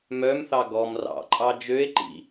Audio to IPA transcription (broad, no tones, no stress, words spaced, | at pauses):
mœmθɑ ɡɔm rɑ̰ǃʼɑ d͡ʒøe̯ǃḭ